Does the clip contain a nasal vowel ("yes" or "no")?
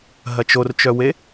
no